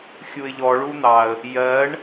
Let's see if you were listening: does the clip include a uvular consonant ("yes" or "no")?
no